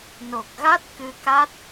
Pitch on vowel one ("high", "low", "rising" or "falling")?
low